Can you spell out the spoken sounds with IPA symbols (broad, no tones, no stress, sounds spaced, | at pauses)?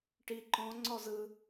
ʈ i ǃ ɔ̃ ŋ͡ǀ ɔ z ɯ